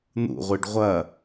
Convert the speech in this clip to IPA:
n̪ ṵ ʁʷ i ɖ ʁʷ ɐ

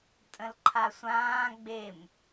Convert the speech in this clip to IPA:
tʼ ə̃ l ǃʰ a sʷ ãː ɡ͡b e m

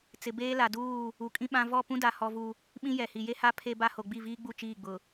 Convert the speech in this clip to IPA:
t͡s ɪ˨ b eː˦ l a˨ d uː˦˨ | u˨ kʼ ĩ˦ ɓ ã˦ v ɔ˦˨ p ũ˦ d a˨ h ɔ˦ v u˦ | ɓ ĩ˦ j ɛ˨ h i˨ j e˦ h a˦ pʰ e˦ b a˦ h o˨ ɡ͡b i˦˨ v iː˦ ɡ͡b u˦˨ t͡ʃ iː˦˨ ɡ͡b ʊ˨

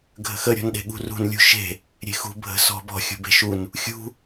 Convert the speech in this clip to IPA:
ɡʱ ə̤ x ə ɾʲ ɔ̤ n ɗ e̤ ɠ ṳ r ṳ n lʲ ṳ ʃ e̤ | ɾʲ e̤ x ṳ bʱ ə̤ s ɔ̤ b ɔ̤ xʲ ṳ b e̤ ʃ u n | xʲ ṳ

